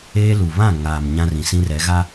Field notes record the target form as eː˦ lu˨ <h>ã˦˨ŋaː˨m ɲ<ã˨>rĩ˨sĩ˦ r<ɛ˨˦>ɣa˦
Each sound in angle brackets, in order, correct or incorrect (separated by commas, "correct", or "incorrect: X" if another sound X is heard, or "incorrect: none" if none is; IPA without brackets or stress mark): incorrect: β, incorrect: ã˦, correct